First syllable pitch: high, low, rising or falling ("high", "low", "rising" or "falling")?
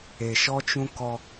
low